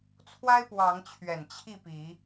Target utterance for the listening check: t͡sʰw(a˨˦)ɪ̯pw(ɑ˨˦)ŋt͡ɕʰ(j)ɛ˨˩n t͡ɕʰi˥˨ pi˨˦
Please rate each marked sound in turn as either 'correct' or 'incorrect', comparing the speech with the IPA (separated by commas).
incorrect, correct, incorrect